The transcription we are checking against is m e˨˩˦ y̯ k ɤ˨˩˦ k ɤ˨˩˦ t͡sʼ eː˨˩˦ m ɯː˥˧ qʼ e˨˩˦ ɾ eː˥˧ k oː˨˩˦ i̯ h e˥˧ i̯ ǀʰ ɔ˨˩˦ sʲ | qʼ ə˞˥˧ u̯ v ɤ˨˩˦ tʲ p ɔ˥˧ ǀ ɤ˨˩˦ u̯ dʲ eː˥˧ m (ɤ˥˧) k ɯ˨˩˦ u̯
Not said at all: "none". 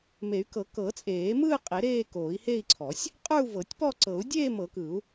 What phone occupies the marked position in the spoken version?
ɤ˨˩˦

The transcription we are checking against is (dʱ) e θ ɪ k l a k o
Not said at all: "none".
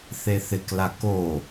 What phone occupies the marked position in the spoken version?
θ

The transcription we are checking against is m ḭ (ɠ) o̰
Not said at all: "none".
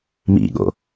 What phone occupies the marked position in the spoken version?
ɠ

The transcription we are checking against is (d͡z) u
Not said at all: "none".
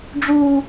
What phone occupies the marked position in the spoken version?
ɖ͡ʐ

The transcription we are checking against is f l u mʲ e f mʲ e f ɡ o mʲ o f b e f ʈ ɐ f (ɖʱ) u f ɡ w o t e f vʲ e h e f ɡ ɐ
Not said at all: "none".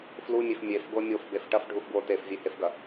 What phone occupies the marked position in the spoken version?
ɖʱ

